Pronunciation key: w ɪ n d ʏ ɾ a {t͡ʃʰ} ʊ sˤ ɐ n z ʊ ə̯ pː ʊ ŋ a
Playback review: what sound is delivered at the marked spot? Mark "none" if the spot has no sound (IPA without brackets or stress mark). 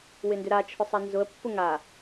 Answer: t͡ʃʰ